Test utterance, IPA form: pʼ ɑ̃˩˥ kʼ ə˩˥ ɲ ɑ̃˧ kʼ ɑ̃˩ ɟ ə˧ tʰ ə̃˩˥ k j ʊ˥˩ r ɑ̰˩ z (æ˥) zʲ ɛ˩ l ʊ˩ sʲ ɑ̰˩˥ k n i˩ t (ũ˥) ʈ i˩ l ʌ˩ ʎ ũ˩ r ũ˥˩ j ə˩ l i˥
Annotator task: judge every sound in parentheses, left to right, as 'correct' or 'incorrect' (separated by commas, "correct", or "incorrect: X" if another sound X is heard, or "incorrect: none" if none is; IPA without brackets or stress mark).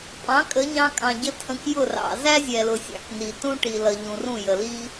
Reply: correct, correct